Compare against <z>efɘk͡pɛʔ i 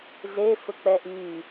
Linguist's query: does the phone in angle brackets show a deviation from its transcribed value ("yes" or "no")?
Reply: no